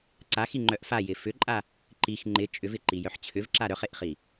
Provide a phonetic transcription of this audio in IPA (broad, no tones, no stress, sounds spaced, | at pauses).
ǀ a x i ŋ͡ǃ œ ʔ f a j ɪ f ʏ ǃʼ a | ǃ i x ŋ͡ǃ ɪ t͡ʃʼ ʏ v ɪ ǃ i j œ ħ t͡ɕʰ ʏ v ǁ a ɾ œ χ e ʔ χ i